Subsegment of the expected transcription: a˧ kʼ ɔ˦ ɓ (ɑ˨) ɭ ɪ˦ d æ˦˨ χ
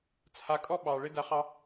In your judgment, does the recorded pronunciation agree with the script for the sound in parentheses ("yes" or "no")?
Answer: yes